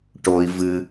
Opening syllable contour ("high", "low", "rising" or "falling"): low